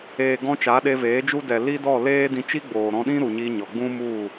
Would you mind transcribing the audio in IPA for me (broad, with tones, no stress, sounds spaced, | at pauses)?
eː˨ ɡ ɔ̃˧ t͡ʃ a˨˦ ɗ e˧ v eː˨˦ d͡ʒ u˦ d ɛ˨ l i˦ d ɔ˦˨ l eː˦ d ĩ˧ t͡ʃ i˦ ɡ͡b oː˨ ɾ ɔ̃˧ ɗ ĩ˦ ɾ u˨ ɲ i˧ ɲ ɔ˨ ɡ͡b ũ˦ m u˦˨